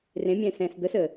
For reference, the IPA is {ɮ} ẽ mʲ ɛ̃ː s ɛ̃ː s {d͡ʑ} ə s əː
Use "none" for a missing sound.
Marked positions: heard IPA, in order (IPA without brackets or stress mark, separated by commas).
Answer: r, d̪